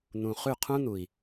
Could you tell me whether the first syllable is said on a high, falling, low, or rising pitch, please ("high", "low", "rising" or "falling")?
low